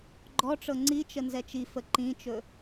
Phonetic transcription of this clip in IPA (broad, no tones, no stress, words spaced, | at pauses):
ɡ͡ǃɔʈ͡ʂɤ ŋ͡ǀit͡ʃə nzɛt͡ʃifə ǃĩt͡ʃɵ